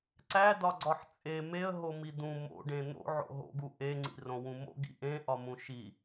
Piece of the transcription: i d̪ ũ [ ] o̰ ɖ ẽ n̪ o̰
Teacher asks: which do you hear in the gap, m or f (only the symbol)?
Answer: m